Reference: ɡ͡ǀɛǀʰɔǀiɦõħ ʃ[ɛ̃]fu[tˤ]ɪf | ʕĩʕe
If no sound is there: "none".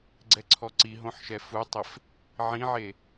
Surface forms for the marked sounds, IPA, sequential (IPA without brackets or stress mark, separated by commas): ɛ, tˤ